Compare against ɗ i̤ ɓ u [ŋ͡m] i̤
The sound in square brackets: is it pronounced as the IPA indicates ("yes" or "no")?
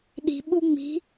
yes